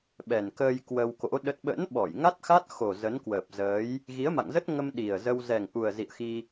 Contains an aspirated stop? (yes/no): no